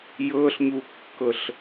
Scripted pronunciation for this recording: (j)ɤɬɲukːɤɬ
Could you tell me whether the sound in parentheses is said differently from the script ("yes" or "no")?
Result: no